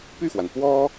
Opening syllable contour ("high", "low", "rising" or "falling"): falling